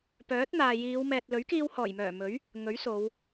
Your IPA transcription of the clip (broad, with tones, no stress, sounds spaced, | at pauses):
p œː˨˥ t̚ n̪ aː˨ j iː˨˧ w m ɛː˨ t̚ l ɵ˨˥ ɥ k iː˧ w h ɔː˨˩ j m œː˨˩ m ɵ˨˥ ɥ | ŋ ɵ˨˥ ɥ s o˨˧ w